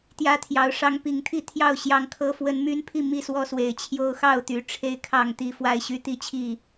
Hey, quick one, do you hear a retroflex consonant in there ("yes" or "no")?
yes